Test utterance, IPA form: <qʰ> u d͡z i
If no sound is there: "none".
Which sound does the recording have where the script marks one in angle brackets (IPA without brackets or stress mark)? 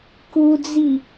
k